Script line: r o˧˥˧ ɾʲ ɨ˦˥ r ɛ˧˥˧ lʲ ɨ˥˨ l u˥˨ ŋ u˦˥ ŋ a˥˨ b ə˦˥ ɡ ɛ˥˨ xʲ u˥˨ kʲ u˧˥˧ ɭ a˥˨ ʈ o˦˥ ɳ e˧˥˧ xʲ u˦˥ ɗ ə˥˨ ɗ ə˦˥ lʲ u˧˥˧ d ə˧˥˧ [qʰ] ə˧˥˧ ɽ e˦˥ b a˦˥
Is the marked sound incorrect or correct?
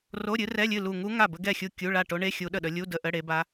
incorrect